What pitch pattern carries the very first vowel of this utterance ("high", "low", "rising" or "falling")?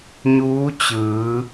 rising